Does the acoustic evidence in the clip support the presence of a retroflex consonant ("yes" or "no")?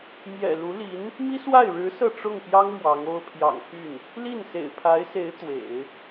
yes